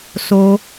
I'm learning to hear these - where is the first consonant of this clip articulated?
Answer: tongue tip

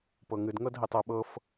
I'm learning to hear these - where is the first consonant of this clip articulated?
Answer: lips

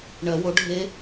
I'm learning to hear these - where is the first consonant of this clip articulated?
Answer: retroflex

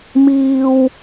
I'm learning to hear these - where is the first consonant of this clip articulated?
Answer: lips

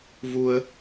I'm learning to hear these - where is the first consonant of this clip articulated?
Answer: lips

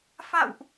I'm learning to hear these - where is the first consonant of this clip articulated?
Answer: lips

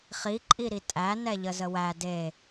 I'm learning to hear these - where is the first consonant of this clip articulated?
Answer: uvula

